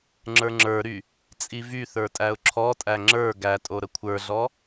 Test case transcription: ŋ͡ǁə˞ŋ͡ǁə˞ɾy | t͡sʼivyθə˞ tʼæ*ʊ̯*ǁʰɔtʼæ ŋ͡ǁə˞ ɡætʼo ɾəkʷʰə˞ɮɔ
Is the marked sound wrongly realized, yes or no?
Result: no